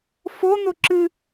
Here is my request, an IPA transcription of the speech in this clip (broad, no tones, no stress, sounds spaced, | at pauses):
f o n̪ o ǁ ɨ